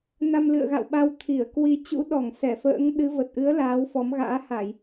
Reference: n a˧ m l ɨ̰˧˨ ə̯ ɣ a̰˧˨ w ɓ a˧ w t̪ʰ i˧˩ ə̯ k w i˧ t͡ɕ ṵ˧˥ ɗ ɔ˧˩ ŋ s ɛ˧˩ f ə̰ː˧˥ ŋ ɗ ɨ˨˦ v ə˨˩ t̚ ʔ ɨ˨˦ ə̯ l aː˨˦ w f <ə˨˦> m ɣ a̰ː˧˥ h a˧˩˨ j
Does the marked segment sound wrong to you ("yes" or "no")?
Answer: yes